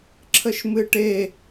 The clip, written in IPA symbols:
ǁʰ ə ʃ m ɨ ʈ e

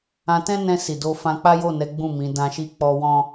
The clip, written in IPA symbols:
ã˧ t ɛ̃˦ n ɛ̃˧ s i˨ d o˧ f ã˧ k͡p a˦ j o˦˨ n ɛ˨˦ ɡ͡b ũ˦˨ m ĩ˨˦ d ã˦ ʃ i˦ k͡p ɔ˧ w ɔ̃˦

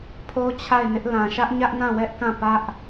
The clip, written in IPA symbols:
pʰ o˦ t͡ɕʰ a˦˨ ɪ̯ n ɪ˦ ʔ l ã˨ ʃ ä˦ ʔ ɲ ä˦ ʔ n ã˦˨ w ɛ˦ ʔ k ã˦˨ p ä˦ ʔ

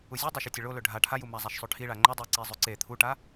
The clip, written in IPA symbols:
u zʲ u dˤ o ʃ u tʲ ɐ ɭ o l ɵ ɖʱ a ʈʰ a j u m a zˤ a ʃ sˤ ʉ ʈʰ i ɭ a ŋ͡ǃ ɵ dˤ i ǀ i zˤ ʉ ǀ e t̪ʰ u ʈ a

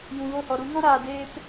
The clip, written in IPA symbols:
j ũ˨ ɣ o˦˨ h ɔ˨ ɾ u˨˦ ŋ ɔ̃˦ ɾ aː˨ d eː˦ p

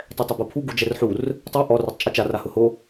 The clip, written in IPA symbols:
tˤ ɛ tˤ ʊ b o pʰ u ɡ u d͡ʒ ɛ r ħ u r | tˤ ɛ ʔ ɔ r o tˤ t͡ʃʼ u t͡ʃ a r a h ʊ h o

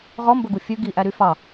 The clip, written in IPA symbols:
ʁ ɔ m b ɵ ɡ u fʲ ʉ ɡ i ʔ æ ɾ y f ɑ

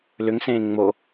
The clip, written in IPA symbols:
l ʏ ŋ s ẽː ŋ͡m o

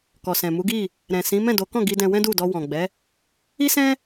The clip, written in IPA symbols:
k ɔ˨ s ɛ̃˨ m u˨˦ ɡ i˦˨ | ɾ ɛ̃˨ s ĩ˨˦ m ɛ̃˦˨ d o˨˦ k ɔ̃˦˨ ɡ i˧ d ɛ̃˧ w ɛ̃˦ d u˦˨ d ɔ˧ w ɔ̃˨ ɡ͡b ɛ˨˦ | i˦ s ɛ̃˦

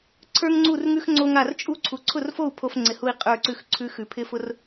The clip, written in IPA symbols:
ǀʰ ə˞˥ ŋ ŋ͡ǀ u˥˨ r ŋ ʉ˥ x ŋ͡ǀ o˥ ŋ a˥˨ r t͡ʃʼ u˥ ǀʰ u˨˩˦ ǀʰ ʊ˥˨ r f o˥˨ u̯ pʰ o˥ f ŋ͡ǀ ɪ˧˩ h u˥˨ i̯ qʼ ə˞˥˨ ǀ ʉ˥˨ x ǀʰ ʉ˧˥ x ʉ˨˩˦ pʰ ɪ˥ f ʊ˥ r

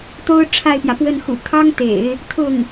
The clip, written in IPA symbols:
t̪ o˥ ʊ̯ ʈ͡ʂʰ a˥˩ ɪ̯ p j ä˩ p w ə˥˩ n x ṵ˨˩ t̪ʰ ɑ˥ ŋ t̪ ḛ˨˩˦ ɪ̯ | t̪ʰ ʊ˥˩ ŋ

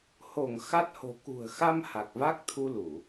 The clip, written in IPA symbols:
h o˧˩ ŋ x a˦˥ t̚ h o̤˨˩ k ṳ˨˩ ə̯ x a˧ m h a˨˩ k̚ v a˦˥ k̚ t̪ʰ u˧ l u˧˩˨

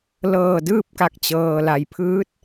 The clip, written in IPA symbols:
l ɤː˧˩ d ɯː˥˨ p̚ k a˧˩ k̚ t͡ɕ ɤː˩ l a˩ j pʰ ɯː˧˥ t̚

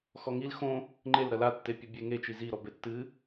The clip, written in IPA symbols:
x ɔ ŋ i l x õ | ŋ͡ǃ e l ɾ ɐ l a tː e pʲ ɐ bʲ e ŋ e t͡ʃ i z i ɾ ɔ b e tː ɨ

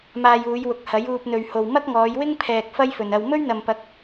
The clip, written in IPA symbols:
m aː˧ j uː˨˧ j w ʊ˨ k̚ h ɐ˨˥ j uː˧ p̚ n̪ ɵ˨ ɥ h o˨ w m ɐ˥ k̚ ŋ ɔː˨˧ j w ɪ˥ ŋ pʰ ɛː˨ k̚ f ɐ˥ j f ɵ˨ n ɐ˧ w m ɵ˥ ɥ n̪ ɐ˨ m p ɐ˨˥ k̚

